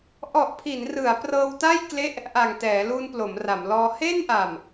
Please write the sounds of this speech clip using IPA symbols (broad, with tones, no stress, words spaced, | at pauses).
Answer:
ʔɔ˨˩ʔpʰi˩˦nrɯ˩˦a̯ prɤː˧wta˥˩j kle˦˥ʔ | ʔa˨˩ŋtɛː˩˦ lu˧nplo˩˦mra˩˦mlɔː˧ he˥˩nʔa˨˩m